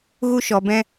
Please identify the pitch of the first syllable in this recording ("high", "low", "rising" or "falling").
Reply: high